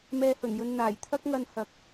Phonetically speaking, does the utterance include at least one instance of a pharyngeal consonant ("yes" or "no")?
no